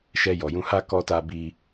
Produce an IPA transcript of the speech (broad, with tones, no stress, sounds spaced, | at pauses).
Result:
ʃ ɛ˧ j ɔ˨ j ũ˧ h a˦ k ɔ˦ t a˦ b i˦